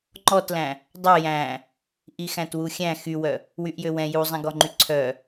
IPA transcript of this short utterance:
ŋ͡ǃɔtlæ̃ | dˤœ jæ̃ | ʔixæ̃twuxʲæ̃ xywœ | wyʔjøwɛ̃ juzˤɛ̃ɡɔŋ͡ǃy ǀʰœ

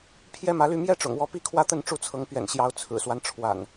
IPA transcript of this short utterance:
pʰjɛ˦mä˨˦ly˥˨ mjɛ˦ʈ͡ʂʊ̰˨˩ŋ wɔ˨˦pi˦kʰwä˦t̪ə˥˨n ʈ͡ʂu˥˨t͡sʰɤ˨˦ŋ pɥɛ̰˨˩nɕjɑ˨˦ʊ̯ t͡sʰɹ̩˨˩swa˦nʈ͡ʂʰwa̰˨˩n

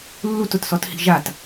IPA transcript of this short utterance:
lːutʊtsɔthi̤ ʒat

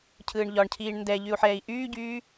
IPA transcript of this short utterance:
cʰɯːɳʎɒɳcʰiːɳ ndɛ ʎyu̯ħɛːi̯ʔyːɟyː

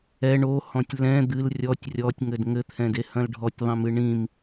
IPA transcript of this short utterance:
ɛ ɳohɔ̃tʲ lɛ̃ d̪ɨl rʲɔtʲ rʲɔtʲŋɘd ŋɘt̪ʰɛ̃de hɐ̃lɖʱɔtʲðˤĩmɨ ɳĩm

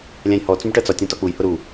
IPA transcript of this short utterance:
lʲæ̃jhɔ t͡sũbʈɜt͡sɒtʲ ɔ̃tɒk͡puj hʊɾu

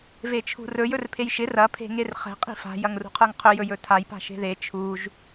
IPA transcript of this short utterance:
vet͡ʃʰṳrɵj ɵrpʰejʃɪ rɐ pʰe̤ŋerχɛ̤ qʼi̤fa̤ jɐŋrṳqʰə˞ŋqʰɵ jɵjɵtʰaj pa̤ʃe̤ðe t͡ʃʰuʒ

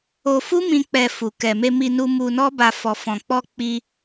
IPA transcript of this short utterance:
o˧fu˦mĩ˧ k͡pɛ˧fu˨ kɛ˨me˧mi˧nu˧ mu˧nɔ˦ba˧ fɔ˨fɔ̃˨k͡pɔ˧ k͡pi˧

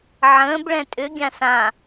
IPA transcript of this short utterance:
ʕə̃ːb ɭɛ̃tʼʏ ɡʲãsã

